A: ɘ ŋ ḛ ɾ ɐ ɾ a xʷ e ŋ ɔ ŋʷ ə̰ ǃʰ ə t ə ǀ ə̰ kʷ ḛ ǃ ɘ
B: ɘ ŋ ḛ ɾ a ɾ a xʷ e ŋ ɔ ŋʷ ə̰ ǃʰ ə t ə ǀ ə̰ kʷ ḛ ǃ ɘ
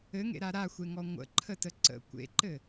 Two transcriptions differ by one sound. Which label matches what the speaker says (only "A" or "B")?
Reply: B